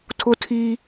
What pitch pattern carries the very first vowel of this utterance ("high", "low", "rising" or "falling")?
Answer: high